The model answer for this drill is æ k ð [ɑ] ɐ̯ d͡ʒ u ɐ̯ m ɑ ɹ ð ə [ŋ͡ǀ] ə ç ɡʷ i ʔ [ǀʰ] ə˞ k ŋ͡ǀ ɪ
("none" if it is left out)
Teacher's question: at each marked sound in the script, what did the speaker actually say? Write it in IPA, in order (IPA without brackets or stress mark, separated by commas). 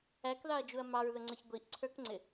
ɑ, ŋ͡ǀ, ǀʰ